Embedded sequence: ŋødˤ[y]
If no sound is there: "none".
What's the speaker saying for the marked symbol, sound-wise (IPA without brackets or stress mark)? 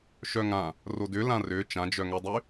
y